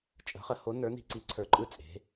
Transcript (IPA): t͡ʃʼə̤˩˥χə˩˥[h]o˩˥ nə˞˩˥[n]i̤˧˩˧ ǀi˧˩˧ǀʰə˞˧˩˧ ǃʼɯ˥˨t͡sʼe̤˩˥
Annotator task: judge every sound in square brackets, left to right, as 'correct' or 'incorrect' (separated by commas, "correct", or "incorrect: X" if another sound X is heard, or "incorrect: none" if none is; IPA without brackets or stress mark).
correct, correct